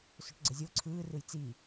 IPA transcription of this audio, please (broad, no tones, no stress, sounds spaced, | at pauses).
s ɵ ʈ ɡ͡ǀ ə zʲ o ǀʰ ɯː r ɯ j t͡s i